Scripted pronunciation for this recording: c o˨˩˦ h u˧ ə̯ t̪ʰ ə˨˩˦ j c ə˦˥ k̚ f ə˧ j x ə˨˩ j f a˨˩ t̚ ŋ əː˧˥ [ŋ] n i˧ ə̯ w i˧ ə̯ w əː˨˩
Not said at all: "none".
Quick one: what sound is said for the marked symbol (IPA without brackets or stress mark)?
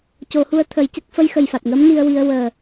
m